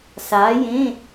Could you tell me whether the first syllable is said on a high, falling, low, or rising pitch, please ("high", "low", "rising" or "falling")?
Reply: rising